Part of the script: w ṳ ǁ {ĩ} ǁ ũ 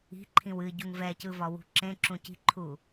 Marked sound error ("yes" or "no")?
yes